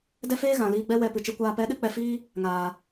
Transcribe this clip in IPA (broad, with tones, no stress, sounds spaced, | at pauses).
d ɛ˦ f eː˦ ɣ ã˨ l iː˧ ɡ͡b ɛ˦ w ɛ˧ p ɨ˨ t͡ʃ ɨ˧ kʷ aː˧ p ɛ˨˦ ɗ ɨ˨ k͡p ɛ˧ f iː˦ | ŋ aː˨